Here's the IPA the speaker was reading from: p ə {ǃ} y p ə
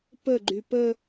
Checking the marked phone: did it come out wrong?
yes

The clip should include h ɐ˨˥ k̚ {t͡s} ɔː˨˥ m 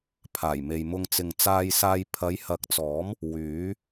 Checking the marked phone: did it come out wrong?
no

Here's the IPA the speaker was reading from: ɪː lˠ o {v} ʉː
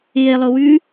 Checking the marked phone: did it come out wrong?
yes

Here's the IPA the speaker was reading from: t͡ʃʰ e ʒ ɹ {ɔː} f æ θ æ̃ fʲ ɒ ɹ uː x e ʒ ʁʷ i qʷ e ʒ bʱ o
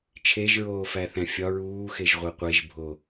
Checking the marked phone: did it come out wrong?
yes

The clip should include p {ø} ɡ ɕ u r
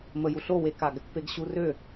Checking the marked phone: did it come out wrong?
yes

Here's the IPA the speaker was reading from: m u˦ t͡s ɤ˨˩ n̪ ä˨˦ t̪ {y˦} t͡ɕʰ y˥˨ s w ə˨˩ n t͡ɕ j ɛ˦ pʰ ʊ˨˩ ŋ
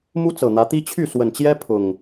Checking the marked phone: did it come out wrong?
yes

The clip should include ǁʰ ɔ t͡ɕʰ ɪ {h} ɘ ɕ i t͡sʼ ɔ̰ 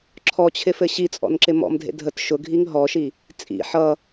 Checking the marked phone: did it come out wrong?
yes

